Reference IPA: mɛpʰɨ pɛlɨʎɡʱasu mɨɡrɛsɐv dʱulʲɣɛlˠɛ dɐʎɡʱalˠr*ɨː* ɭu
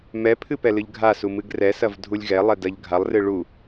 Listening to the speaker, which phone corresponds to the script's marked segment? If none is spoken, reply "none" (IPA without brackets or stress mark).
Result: ɨ